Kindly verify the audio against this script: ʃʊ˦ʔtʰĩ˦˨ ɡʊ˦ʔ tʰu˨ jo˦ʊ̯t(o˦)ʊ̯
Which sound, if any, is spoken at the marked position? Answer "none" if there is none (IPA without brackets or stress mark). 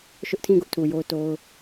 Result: o˦